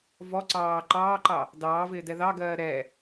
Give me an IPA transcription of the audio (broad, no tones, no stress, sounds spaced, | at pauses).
v ɔ ǀ ɑː ǃ ɑː ǃ ɑ | d ɑː v ɪː d ɛ ð ɑ ɡ ɜː ɾ ɛ